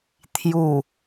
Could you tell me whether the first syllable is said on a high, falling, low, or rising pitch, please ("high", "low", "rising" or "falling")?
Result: low